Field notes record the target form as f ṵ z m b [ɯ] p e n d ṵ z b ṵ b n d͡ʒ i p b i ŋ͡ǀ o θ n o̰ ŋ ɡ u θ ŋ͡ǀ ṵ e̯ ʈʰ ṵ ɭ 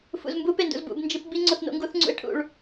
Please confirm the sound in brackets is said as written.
no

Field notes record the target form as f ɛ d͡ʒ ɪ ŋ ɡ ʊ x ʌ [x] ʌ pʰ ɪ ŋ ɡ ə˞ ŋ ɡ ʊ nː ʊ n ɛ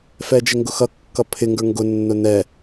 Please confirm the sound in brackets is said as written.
no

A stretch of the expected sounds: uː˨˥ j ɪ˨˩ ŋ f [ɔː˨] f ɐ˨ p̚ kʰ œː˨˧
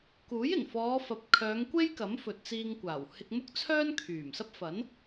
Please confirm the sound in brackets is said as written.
no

